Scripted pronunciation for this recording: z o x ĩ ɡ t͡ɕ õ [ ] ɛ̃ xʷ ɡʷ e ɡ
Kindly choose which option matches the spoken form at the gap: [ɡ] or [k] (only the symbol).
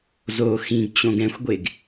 ɡ